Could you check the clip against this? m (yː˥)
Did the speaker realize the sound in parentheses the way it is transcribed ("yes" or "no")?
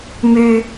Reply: no